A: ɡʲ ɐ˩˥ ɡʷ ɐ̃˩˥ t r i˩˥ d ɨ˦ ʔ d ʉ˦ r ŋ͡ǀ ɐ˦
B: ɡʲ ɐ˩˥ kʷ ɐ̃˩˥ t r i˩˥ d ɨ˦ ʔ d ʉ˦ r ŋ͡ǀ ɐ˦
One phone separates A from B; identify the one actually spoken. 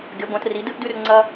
A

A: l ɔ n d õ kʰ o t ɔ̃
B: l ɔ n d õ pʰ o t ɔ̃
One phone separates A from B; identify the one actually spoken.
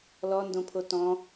B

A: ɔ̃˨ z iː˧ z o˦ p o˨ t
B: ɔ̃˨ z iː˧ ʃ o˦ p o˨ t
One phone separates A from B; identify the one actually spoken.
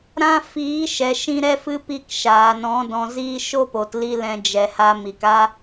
B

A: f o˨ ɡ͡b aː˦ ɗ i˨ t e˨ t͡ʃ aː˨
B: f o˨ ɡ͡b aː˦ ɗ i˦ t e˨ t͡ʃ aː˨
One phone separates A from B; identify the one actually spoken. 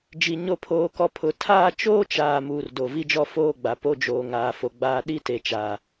B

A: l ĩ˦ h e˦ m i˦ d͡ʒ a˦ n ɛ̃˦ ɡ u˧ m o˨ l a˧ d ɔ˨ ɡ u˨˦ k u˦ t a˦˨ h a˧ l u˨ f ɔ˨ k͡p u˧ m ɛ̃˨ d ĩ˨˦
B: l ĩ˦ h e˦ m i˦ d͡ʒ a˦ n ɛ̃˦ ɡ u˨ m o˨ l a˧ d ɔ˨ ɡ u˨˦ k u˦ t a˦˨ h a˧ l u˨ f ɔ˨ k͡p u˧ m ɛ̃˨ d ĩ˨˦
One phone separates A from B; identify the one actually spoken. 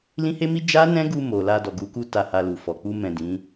A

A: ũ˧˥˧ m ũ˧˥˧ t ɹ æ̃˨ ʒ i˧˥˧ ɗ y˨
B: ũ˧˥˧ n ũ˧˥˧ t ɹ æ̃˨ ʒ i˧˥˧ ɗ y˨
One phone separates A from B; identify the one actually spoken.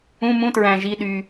A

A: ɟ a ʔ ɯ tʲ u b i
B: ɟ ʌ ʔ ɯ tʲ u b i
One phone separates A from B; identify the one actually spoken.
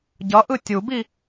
B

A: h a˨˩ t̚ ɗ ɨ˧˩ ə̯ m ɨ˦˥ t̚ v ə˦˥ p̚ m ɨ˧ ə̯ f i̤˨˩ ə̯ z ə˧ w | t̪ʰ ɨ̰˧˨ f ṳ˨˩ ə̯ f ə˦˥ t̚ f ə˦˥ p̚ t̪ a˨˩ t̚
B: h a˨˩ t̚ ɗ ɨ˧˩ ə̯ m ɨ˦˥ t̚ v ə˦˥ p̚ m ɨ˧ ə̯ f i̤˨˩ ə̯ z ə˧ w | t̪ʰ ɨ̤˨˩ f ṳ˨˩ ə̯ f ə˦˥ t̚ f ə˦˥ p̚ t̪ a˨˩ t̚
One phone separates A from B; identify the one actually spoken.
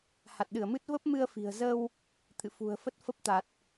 A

